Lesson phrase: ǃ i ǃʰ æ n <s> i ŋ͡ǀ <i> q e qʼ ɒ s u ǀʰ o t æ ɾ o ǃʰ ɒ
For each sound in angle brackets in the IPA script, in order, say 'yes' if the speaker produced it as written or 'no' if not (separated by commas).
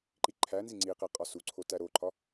no, yes